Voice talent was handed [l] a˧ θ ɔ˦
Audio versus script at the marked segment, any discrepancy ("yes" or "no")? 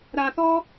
yes